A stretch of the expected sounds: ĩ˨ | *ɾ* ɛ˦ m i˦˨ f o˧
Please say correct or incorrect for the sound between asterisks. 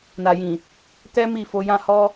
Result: incorrect: t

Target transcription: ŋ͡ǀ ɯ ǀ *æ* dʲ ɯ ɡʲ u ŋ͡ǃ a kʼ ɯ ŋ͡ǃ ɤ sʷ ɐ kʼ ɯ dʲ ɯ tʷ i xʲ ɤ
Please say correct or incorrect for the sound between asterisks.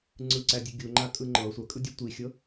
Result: correct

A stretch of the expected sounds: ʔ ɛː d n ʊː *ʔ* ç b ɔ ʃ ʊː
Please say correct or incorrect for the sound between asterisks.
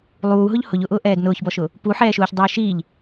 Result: incorrect: none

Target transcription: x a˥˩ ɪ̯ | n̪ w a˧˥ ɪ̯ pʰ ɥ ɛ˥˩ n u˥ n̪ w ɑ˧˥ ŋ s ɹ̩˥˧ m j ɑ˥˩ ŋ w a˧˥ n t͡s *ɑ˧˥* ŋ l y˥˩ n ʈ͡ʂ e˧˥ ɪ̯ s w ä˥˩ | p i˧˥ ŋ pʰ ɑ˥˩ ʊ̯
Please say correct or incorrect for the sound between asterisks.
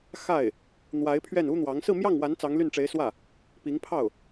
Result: correct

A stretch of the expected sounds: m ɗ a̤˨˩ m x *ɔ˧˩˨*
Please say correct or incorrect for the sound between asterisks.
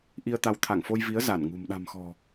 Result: incorrect: ɔ̤˨˩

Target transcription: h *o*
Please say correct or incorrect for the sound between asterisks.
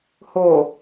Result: correct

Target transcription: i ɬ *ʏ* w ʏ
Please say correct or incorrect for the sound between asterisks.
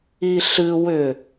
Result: incorrect: ɨ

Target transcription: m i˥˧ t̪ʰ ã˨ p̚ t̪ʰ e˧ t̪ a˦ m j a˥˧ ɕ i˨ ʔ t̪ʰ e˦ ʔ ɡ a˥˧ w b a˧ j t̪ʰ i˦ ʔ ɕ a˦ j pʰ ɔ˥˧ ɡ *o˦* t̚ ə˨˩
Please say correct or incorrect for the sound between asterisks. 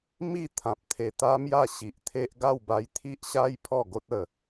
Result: correct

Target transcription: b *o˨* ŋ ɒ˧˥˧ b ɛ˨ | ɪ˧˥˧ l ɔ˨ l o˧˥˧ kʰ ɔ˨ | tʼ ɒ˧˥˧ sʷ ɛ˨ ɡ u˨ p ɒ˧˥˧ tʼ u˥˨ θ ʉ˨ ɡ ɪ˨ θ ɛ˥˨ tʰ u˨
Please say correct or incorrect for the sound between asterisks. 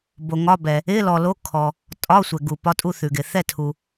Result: correct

